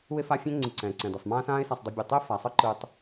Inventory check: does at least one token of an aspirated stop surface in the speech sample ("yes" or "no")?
no